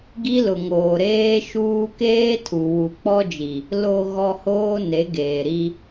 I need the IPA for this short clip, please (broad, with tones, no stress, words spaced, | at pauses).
ɡi˦lʊ˨ŋoː˨ ɾeː˦ʃuː˦ keː˦tʰu˨ wu˨k͡pɔ˦d͡ʒi˨ | lo˨ɣɔ˨ hoː˦ne˨˦ ɡeː˨ɾi˦